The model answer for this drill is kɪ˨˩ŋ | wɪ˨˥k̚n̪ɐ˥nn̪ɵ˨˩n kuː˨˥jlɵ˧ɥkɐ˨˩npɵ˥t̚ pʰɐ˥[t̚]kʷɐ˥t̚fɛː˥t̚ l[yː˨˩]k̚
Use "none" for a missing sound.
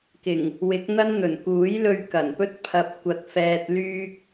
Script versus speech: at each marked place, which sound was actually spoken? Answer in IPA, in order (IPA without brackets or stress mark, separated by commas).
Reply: p̚, yː˥